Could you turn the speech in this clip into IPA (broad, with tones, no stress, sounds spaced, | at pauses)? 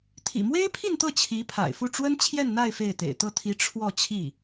t̪ʰ ḭ˨˩ m w e˥ ɪ̯ pʰ i˥˧ n t̪ ɤ˥˩ t͡ɕʰ i˧˥ pʰ a̰˨˩ ɪ̯ f u˥˩ ʈ͡ʂ w ə˥ n t͡ɕʰ j ɛ˥˧ n n̪ a˥˧ ɪ̯ f e˥˩ ɪ̯ t̪ ḛ˨˩ ɪ̯ t̪ ɤ˥˩ t̪ʰ i˧˥ ʈ͡ʂʰ w ɔ˥˧ t͡ɕʰ i˥˩